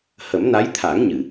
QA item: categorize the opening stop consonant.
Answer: aspirated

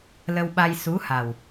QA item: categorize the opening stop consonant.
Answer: implosive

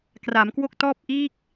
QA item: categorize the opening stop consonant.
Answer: plain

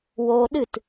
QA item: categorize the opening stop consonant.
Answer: implosive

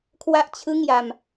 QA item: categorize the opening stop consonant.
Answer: aspirated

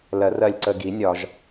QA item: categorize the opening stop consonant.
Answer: click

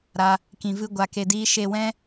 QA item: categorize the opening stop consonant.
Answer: plain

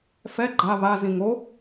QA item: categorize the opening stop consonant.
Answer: click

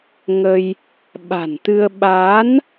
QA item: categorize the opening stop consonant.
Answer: implosive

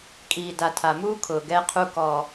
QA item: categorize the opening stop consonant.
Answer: ejective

